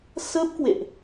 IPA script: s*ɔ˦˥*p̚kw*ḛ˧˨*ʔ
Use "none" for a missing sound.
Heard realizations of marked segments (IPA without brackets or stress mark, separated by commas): ə˦˥, ḛ˧˨